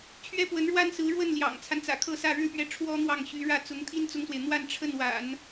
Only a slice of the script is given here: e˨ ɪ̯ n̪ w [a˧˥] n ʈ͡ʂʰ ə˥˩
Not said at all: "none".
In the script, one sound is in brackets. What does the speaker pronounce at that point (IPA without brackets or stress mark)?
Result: a˥˧